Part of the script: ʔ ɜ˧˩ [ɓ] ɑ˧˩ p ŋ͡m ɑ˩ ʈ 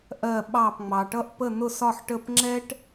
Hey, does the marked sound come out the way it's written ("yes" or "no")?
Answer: yes